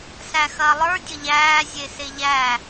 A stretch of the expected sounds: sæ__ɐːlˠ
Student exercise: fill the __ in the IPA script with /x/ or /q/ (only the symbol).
x